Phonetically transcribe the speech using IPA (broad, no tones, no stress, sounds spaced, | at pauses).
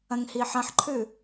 ɐ̃ ŋ h i ħ ɐ̃ ħ ǃʰ ʉ